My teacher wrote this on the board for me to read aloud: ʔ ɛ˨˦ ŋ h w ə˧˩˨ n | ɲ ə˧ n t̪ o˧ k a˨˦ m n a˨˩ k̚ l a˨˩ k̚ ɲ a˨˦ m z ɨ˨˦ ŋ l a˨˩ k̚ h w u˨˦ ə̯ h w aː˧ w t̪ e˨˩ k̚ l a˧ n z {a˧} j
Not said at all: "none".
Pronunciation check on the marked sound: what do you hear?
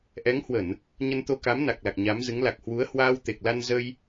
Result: ə˧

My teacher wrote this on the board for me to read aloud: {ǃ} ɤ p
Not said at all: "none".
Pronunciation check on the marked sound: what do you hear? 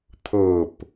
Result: t̪ʰ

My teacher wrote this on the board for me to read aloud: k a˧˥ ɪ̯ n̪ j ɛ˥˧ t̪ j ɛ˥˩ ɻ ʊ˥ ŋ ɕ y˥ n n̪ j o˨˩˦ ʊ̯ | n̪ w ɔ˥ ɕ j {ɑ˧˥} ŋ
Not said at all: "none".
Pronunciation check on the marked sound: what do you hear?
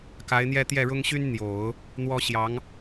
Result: ɑ˧˥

